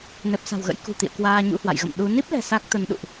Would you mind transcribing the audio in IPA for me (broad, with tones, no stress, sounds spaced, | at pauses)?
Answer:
n ɛ˨˩ p̚ s a̤˨˩ w ɣ ə̰˧˥ j k ṳ˨˩ t̪ ḭ˧˨ ə̯ k w aː˧ ɲ ṵ˧˥ h w a̰˧˨ j ɣ ə̰˧˨ m ɗ u˨˦ n i˦˥ p̚ l ɛ̤˨˩ s a˦˥ k̚ t̪ ə˨˦ n ɗ ṵ˧˨ ʔ